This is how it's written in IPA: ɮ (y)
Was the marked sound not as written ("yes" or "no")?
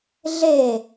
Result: yes